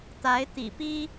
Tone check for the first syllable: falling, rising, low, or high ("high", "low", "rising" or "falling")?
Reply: rising